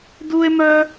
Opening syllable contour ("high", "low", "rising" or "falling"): high